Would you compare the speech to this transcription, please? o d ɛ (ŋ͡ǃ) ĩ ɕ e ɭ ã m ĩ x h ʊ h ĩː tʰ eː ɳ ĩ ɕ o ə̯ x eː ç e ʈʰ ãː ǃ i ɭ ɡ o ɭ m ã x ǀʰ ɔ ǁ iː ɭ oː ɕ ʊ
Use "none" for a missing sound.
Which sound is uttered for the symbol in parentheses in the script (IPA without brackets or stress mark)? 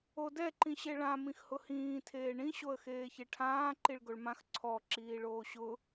ǃ